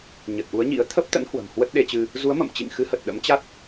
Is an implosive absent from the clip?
no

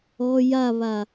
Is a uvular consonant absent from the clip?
yes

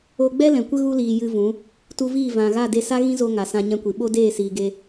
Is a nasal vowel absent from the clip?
no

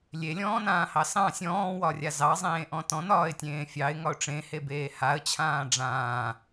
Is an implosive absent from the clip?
yes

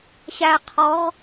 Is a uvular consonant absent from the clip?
no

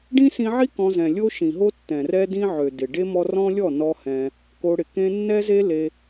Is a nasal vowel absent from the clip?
no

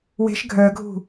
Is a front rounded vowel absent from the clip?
no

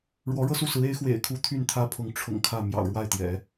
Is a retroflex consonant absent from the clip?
no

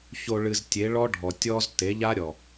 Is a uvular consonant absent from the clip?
yes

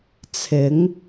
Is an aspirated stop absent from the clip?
no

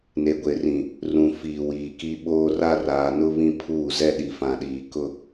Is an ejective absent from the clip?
yes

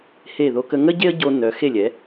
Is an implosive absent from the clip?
yes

